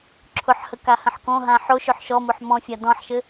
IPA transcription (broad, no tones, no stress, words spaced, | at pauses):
ǁʰʊħhə kahə̃ħkõɦã ħoʃøħ ʃɔmoħ mɔ̃fʲa dɔ̃ħʃɘ